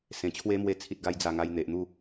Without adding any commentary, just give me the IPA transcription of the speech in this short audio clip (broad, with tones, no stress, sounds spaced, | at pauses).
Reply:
s ẽ˨˩ t͡ɕʰ w e˦ m w e˧ t͡sʰ i˨ t̚ ɡ a˧ j d͡z a˨˩ ŋ a˧ j n̪ e˨ ʔ n̪ u˥˧